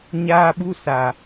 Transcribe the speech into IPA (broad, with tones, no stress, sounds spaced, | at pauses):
ɲ aː˧ ɓ u˧ s a˨